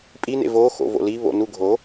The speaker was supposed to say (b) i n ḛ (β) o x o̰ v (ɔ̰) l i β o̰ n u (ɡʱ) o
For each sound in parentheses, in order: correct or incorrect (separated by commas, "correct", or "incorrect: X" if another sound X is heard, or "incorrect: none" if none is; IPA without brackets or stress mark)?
incorrect: pʼ, incorrect: v, incorrect: o̰, correct